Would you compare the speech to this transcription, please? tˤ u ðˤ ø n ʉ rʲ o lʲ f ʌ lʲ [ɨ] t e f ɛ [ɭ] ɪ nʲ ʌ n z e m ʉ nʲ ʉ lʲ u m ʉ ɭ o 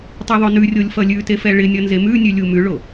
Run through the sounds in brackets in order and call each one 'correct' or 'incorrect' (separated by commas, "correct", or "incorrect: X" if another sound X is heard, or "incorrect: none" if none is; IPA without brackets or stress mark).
incorrect: ʉ, correct